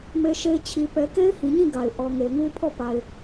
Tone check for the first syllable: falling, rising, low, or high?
high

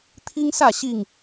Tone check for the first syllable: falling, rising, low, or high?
high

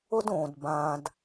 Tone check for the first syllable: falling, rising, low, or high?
high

